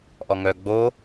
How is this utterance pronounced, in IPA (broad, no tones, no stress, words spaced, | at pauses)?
ʔɔŋœ ɡ͡bo